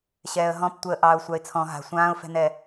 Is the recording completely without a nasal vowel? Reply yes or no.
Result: no